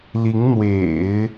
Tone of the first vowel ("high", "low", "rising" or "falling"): rising